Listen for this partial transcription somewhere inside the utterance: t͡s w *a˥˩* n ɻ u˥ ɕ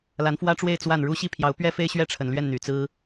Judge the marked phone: correct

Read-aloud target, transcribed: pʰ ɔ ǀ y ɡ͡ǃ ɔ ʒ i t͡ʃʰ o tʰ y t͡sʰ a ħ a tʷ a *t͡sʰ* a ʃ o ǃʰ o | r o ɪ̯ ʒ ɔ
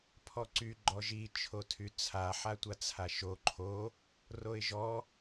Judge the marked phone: correct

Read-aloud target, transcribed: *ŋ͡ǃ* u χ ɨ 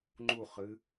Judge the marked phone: correct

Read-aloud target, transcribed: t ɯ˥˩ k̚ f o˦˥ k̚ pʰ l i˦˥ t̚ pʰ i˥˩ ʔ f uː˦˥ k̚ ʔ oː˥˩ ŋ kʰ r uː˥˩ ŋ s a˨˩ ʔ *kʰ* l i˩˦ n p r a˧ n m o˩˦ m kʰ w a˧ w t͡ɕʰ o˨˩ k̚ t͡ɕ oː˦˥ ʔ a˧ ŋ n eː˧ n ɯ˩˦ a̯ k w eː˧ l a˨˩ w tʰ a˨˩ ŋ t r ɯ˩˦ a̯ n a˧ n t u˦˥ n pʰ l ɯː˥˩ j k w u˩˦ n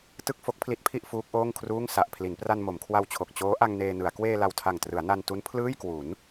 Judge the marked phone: incorrect: pʰ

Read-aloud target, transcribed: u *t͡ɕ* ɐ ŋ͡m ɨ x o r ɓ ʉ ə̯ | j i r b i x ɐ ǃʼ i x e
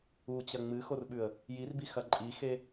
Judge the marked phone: correct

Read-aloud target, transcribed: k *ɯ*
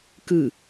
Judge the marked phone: correct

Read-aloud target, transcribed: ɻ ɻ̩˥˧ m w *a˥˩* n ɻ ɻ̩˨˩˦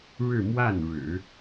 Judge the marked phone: correct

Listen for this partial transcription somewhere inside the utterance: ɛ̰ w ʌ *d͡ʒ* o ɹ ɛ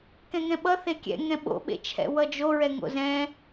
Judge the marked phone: correct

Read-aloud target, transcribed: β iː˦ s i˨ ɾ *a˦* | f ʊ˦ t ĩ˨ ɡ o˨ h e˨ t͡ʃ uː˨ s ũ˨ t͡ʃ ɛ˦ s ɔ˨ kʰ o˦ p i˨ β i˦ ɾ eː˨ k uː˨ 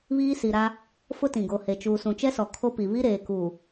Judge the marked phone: correct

